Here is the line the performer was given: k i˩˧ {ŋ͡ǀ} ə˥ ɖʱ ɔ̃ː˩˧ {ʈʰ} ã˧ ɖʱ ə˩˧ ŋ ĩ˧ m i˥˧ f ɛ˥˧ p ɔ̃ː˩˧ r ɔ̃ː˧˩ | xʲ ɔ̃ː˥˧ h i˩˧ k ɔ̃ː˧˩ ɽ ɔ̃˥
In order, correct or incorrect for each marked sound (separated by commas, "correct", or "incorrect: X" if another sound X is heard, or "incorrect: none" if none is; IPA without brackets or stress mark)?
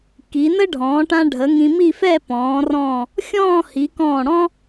incorrect: n, incorrect: ʈ